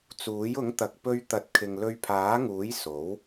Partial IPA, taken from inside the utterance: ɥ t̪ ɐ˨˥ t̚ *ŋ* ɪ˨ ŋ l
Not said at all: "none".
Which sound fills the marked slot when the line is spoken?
kʰ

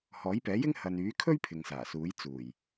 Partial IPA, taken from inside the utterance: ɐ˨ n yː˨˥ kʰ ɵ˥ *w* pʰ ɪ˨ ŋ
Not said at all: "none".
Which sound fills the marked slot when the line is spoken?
ɥ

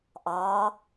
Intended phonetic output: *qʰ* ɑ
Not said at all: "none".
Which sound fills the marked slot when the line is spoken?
ʔ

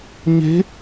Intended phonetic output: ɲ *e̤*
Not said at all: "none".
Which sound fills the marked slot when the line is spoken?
e̤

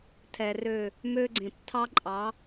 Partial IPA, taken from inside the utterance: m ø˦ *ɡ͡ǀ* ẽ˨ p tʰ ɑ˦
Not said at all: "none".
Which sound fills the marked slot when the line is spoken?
ɡ͡ǀ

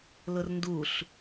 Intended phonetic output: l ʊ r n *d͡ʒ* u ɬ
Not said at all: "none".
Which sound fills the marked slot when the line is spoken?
d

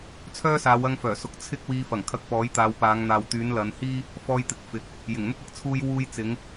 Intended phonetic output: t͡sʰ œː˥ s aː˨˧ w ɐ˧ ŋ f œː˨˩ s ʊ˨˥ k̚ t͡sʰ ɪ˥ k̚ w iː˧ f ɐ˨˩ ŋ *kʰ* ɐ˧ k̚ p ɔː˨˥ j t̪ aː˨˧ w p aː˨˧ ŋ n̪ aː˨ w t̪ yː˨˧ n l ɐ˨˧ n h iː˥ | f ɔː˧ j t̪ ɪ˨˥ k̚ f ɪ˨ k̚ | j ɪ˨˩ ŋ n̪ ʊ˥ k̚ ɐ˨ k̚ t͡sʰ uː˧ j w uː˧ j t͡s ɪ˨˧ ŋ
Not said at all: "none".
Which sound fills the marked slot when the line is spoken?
kʰ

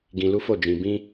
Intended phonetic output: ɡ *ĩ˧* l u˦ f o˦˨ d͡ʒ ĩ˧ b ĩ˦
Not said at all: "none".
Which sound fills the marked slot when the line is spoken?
ĩ˧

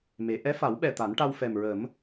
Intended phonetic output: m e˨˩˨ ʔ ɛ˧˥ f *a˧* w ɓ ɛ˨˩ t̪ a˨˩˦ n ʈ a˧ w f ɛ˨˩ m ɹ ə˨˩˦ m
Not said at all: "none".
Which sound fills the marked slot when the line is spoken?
a˨˩˦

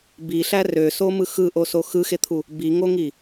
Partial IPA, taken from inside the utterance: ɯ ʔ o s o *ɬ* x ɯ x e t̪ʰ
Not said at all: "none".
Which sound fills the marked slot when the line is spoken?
none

